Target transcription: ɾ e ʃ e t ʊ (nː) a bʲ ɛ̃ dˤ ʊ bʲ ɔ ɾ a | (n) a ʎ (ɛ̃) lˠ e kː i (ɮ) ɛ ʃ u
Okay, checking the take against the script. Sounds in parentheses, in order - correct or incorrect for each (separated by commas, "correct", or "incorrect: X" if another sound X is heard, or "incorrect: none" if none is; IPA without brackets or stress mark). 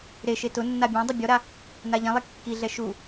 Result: correct, correct, correct, correct